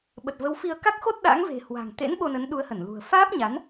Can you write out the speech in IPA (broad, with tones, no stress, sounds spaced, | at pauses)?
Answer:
ɓ ə˨˩ t̚ v ə˨˦ w f i˧ ə̯ k a˦˥ k̚ x o˦˥ t̚ ɗ a̰˧˥ ŋ v e̤˨˩ h w a̤˨˩ ŋ t̪ ḛ˧˥ n ɓ o˧ n ə˨˦ n ɗ u˨˦ ə̯ h ə˧˩ n l ṳ˨˩ ə̯ f aː˦˥ p̚ ɲ a˨˦ n